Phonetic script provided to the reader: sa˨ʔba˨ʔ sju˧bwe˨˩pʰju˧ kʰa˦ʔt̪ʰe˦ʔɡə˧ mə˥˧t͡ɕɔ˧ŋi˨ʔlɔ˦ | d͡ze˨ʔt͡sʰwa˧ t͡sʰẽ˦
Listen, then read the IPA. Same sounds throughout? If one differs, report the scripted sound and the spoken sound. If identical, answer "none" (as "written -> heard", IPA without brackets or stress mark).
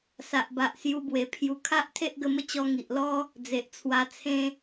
none